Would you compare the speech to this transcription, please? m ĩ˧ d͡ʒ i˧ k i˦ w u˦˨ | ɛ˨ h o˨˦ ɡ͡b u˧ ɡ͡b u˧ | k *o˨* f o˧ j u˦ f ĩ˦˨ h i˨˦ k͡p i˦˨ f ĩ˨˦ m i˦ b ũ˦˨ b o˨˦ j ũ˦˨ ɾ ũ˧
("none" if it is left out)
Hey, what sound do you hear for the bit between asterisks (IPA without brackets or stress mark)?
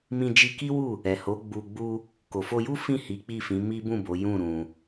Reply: o˨